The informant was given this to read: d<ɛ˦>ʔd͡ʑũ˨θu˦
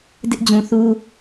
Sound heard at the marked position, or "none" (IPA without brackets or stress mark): ɪ˦